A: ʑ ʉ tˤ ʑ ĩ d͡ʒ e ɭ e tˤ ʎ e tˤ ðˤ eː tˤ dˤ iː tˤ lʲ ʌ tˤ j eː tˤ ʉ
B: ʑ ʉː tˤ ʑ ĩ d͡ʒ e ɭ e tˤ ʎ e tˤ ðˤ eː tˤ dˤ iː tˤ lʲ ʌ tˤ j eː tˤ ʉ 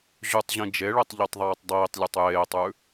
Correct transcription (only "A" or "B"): A